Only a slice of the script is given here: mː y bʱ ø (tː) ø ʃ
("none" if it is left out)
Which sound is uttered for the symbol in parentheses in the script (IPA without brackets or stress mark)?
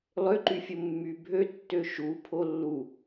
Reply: tː